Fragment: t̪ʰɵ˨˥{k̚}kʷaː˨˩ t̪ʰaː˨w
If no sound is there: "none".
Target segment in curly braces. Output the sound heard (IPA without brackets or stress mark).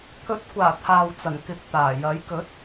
t̚